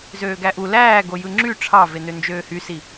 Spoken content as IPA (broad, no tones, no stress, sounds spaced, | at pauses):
z øː ɡ æ ʔ u l æː ɡ o j ɯ ŋ͡ǁ y ʈ͡ʂʰ ɑ v e n ø n d͡ʒ øː h y s i